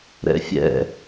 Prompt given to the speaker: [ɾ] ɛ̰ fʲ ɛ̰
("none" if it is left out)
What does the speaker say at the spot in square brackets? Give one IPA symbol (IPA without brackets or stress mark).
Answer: ɾ